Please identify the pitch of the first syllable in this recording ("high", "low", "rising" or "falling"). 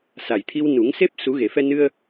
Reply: low